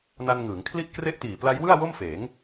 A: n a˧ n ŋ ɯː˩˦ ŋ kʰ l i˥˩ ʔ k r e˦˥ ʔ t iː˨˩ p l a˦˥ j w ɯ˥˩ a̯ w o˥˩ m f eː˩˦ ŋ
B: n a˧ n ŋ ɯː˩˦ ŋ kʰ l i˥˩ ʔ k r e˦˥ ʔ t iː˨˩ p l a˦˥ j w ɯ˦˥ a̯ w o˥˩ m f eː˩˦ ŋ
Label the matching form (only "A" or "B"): A